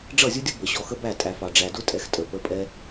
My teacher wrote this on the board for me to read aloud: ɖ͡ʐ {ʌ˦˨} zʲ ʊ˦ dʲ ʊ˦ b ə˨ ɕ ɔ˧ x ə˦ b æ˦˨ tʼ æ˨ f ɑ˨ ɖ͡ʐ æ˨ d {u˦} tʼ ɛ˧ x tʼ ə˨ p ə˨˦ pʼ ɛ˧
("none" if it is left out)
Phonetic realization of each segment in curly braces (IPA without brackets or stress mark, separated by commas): ʌ˦˨, ʊ˦